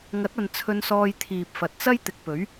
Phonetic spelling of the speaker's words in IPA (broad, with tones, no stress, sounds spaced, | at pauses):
ŋ ɐ˨˥ t̚ ɐ˨ n t͡sʰ ɵ˧ n s ɔː˧ j t̪ʰ iː˨ p̚ f ɐ˨ t̚ t͡s ɐ˥ j t̪ ɪ˨ k̚ p ɵ˨˥ ɥ